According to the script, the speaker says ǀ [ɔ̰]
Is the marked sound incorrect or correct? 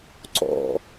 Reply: correct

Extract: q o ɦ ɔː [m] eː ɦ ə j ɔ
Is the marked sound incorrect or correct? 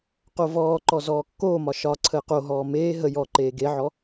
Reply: correct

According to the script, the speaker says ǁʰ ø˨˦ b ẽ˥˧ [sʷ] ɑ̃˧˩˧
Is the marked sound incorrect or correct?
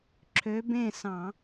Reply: incorrect: s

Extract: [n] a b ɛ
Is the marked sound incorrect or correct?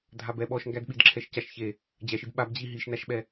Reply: incorrect: dʱ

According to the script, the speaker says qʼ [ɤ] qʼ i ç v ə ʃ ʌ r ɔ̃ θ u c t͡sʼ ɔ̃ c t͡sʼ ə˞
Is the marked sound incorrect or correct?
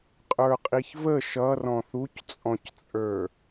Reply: incorrect: ə˞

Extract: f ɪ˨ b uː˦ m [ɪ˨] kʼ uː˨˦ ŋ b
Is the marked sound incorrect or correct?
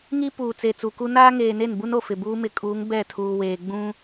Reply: correct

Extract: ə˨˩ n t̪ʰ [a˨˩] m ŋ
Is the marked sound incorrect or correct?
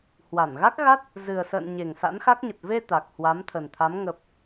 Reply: incorrect: a˨˦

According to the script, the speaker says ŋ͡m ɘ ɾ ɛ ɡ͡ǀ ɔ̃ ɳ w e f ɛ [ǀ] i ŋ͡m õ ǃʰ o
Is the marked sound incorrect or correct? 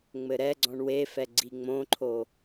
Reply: incorrect: ɡ͡ǀ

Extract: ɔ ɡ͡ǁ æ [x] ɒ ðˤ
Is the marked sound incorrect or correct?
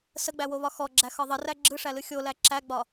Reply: correct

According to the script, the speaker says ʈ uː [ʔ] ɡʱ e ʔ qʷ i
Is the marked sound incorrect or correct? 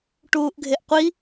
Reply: correct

